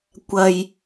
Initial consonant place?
velar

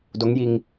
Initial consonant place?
alveolar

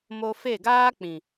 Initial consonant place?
labial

